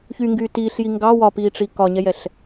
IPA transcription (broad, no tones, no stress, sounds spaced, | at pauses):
ç y ŋ ɡ yː t iː ɬ j i ŋ ɡ ɑ w ɒ p iː ʈ͡ʂ i k ɒ ɲ ɛ j ɛ ɬ